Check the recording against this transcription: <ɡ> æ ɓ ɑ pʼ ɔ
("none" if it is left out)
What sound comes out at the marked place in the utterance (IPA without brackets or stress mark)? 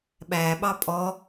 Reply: ɓ